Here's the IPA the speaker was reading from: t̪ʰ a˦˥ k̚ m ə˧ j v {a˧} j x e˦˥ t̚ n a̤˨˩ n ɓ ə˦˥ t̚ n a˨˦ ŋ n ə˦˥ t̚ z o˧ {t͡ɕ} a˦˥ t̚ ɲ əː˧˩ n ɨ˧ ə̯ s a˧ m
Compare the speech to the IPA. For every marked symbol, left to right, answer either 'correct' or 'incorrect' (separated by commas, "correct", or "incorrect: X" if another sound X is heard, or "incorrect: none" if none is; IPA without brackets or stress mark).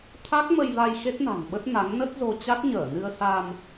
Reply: correct, correct